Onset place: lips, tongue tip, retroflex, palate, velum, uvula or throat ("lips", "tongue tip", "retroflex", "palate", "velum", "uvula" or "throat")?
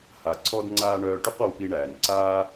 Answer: throat